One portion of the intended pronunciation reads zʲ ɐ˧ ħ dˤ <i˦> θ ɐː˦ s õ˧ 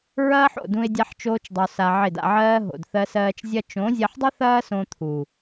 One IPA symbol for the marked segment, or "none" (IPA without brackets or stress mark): ɪ˦